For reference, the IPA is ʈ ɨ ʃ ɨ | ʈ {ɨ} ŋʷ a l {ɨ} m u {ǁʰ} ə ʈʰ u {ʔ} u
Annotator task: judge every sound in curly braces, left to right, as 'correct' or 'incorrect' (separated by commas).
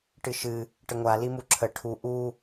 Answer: incorrect, incorrect, correct, correct